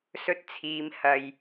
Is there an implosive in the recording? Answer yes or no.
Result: no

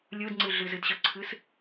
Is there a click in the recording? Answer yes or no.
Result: yes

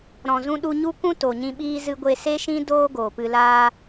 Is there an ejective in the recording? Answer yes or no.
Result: no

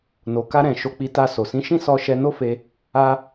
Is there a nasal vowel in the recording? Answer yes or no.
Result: yes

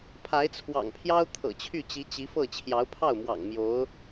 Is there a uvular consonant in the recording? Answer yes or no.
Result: no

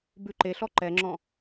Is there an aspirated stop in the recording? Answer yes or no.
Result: no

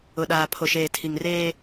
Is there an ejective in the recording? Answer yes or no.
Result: no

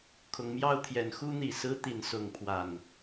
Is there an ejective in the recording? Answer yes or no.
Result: no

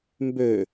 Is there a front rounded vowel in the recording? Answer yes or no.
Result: yes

